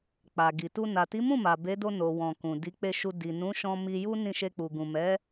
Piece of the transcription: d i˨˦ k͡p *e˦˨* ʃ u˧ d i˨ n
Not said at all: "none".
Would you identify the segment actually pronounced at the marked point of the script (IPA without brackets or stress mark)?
e˦˨